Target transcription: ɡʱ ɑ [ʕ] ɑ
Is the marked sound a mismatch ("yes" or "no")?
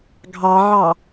no